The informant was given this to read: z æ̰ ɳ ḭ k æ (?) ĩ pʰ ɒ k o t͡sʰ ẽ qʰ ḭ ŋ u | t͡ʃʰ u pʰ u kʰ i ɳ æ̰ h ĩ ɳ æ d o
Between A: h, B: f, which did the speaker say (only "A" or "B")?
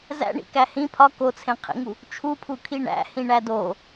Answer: A